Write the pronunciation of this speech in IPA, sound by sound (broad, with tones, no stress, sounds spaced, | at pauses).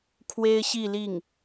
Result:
kʰ w e˥ ɪ̯ ɕ i˥˧ l i˥˩ ŋ